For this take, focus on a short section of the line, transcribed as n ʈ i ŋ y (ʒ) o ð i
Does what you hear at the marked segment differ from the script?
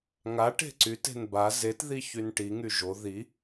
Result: no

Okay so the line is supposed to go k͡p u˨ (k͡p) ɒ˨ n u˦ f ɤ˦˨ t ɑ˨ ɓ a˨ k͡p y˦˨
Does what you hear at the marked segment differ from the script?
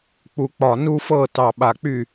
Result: no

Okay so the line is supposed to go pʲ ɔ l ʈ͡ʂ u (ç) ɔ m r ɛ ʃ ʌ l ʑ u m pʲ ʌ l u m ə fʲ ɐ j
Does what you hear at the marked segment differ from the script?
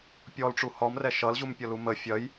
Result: yes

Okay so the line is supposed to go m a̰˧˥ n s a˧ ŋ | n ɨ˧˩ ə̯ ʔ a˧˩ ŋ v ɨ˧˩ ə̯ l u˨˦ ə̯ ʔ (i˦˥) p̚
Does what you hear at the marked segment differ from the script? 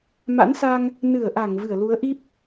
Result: no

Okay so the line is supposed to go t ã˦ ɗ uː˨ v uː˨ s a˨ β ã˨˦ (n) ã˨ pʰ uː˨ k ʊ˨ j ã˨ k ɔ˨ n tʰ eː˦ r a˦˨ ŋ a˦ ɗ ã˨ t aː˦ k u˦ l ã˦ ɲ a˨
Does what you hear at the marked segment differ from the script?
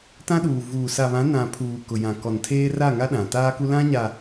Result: no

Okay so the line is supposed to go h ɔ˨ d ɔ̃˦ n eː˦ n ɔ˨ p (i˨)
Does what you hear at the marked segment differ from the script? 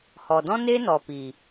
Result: no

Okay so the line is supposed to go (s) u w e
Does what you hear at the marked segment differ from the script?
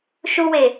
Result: yes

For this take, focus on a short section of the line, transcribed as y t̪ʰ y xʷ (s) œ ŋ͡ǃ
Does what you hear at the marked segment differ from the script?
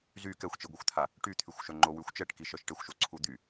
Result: yes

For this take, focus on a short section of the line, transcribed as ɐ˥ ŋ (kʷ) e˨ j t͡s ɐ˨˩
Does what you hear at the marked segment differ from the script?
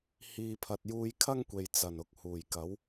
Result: no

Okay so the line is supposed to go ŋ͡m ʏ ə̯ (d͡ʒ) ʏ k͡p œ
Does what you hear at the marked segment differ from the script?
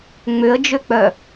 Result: no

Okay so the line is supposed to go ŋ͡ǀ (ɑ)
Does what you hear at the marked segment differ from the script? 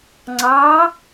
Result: no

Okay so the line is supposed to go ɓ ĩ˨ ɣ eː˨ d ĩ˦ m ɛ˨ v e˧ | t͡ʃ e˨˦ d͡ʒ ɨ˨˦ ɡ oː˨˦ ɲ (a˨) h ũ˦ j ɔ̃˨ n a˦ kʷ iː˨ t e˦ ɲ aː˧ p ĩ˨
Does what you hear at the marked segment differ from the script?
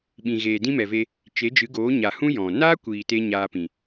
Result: no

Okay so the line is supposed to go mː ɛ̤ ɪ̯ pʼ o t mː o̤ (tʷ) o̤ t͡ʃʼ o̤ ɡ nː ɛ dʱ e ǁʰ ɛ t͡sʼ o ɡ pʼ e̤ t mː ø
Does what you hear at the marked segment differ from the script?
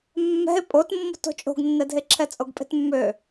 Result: yes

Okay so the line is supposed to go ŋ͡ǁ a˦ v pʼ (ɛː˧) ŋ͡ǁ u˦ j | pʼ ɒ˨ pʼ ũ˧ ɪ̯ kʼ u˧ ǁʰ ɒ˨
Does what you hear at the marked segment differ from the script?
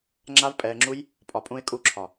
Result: no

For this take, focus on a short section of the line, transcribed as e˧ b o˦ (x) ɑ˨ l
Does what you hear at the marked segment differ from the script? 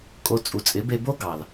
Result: yes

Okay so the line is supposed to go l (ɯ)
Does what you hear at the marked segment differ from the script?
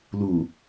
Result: yes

